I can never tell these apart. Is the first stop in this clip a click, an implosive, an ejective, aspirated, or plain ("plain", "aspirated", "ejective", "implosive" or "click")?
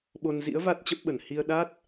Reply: implosive